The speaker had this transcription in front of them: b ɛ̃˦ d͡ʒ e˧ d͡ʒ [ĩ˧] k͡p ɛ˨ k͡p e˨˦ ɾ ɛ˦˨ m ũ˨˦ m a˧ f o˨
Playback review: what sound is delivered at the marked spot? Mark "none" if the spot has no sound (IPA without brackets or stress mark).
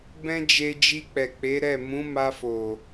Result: i˧